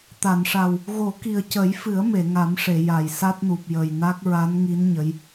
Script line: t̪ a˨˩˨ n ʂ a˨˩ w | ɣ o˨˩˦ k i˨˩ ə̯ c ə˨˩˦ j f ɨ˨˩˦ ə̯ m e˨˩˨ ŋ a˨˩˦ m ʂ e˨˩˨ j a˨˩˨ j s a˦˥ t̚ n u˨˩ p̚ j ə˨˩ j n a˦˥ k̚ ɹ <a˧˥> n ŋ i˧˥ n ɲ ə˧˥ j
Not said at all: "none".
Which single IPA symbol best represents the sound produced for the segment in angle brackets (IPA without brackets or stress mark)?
a˧˥